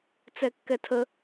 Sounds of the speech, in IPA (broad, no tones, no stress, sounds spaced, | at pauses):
t͡s ɛ kː ɛ tʰ ə